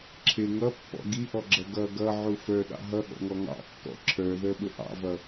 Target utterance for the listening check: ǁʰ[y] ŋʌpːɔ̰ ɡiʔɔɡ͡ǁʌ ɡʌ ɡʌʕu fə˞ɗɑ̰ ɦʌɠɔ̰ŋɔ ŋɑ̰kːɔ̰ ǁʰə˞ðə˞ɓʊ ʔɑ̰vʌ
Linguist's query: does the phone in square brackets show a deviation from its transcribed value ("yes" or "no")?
yes